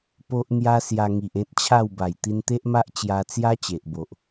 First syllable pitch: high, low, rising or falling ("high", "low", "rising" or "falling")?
high